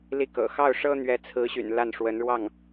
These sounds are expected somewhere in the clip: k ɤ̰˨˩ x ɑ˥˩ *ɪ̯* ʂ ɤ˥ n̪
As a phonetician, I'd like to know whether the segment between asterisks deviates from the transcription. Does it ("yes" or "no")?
yes